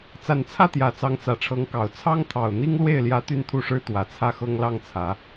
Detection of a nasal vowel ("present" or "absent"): absent